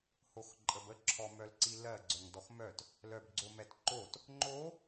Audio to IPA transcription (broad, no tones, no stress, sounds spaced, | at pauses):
h o x ǃʼ ə b ə ǁʰ ɔ m œ l ǀ i l ɜ ɡ͡ǀ œ ŋ d ɔ x m œ t | l œ b ɡ͡ǀ o m ɛ t ǃ o t | ŋ͡ǃ o